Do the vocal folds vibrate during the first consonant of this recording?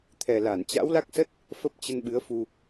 no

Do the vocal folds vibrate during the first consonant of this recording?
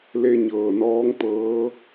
yes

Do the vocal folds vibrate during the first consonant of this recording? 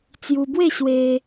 no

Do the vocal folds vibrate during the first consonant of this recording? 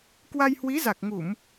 no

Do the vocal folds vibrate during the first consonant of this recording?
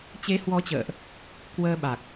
no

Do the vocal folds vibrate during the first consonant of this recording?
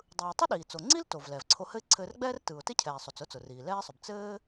yes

